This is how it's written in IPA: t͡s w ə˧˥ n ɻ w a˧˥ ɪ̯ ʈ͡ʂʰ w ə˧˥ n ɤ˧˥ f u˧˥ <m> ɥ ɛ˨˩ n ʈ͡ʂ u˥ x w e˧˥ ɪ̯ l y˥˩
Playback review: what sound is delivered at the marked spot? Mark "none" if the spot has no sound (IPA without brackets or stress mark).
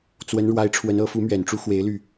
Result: m